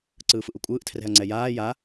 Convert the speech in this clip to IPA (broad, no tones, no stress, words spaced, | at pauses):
ǀɯːfɯʔukʷʼɯːʔ tʰrɛ̤ɐ̯ŋ͡ǀɛjaː ja